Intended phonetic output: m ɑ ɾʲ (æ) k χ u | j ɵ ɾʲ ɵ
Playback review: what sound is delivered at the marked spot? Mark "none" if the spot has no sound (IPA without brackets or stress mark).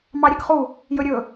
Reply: ɛ